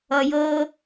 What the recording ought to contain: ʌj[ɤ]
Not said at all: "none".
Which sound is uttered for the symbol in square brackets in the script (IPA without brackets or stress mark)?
ɤ